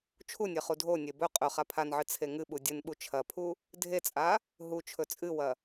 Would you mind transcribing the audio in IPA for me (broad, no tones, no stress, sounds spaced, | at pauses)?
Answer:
t͡ʃʰ u nʲ e χ u dʱ o nʲ e b ɵ qʼ ɵ χ a pʰ a n ʕ ɨ t͡sʰ e ŋ ɨ ɓ u dʲ ɨ n ɓ u t͡ʃʰ ɐ pʰ u | dʱ e t͡sʼ a | ɦ u t͡ʃʰ ɵ t͡sʼ ɨ w ɐ